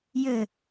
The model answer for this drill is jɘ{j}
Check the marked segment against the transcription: incorrect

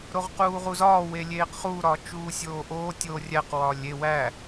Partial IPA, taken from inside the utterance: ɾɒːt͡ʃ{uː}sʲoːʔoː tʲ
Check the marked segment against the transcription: correct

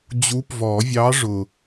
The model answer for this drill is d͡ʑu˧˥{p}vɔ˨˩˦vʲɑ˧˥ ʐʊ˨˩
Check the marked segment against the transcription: correct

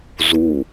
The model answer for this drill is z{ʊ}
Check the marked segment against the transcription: incorrect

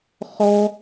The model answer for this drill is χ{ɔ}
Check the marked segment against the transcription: correct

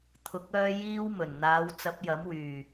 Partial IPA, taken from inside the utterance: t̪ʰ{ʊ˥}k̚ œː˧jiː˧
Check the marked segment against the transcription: incorrect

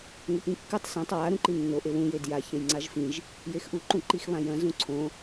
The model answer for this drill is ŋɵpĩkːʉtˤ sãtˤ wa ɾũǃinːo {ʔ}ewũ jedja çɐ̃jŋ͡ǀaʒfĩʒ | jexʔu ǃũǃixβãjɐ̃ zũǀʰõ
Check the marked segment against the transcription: correct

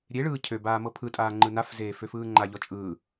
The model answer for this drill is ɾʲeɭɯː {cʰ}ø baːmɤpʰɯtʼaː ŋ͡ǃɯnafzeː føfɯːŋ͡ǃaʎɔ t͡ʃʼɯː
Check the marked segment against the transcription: correct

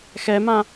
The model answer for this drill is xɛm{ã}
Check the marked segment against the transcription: correct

